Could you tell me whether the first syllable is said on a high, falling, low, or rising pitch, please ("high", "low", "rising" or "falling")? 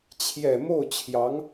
low